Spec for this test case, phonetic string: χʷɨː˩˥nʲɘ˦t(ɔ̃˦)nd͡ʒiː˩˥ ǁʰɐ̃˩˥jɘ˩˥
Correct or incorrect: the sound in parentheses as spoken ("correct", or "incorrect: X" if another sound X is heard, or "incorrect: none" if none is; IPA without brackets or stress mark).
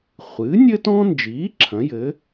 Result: correct